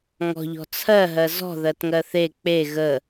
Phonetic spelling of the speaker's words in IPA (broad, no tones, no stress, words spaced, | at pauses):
ŋɔ̤ʎɔ̤ t͡sʰɜɦɜ zɔ̤ðɜtŋɜ θe k͡pe ɣə